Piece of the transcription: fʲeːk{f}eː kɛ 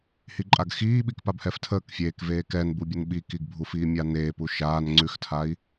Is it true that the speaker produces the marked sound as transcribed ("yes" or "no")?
no